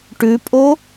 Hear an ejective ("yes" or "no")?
yes